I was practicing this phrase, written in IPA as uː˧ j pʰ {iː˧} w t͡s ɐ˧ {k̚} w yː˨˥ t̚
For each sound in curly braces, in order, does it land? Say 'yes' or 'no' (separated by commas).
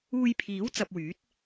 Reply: no, no